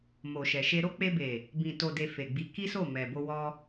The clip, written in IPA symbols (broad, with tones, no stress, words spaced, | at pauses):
mo˨ʃɛ˨ʃe˧ɾo˦ k͡pe˧be˨ | bĩ˨ to˨de˨ fe˨ɡ͡bi˨˦ ki˦so˦˨ mɛ˨bo˧wɔ˧